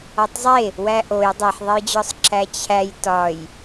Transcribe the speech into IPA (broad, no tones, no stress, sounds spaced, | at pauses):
ɒ tˤ zˤ e | w æ ʔ o j dˤ e ħ ðˤ e j d͡ʑ ɒ sˤ ǁ æ t͡ɕʰ æ j t ɒ j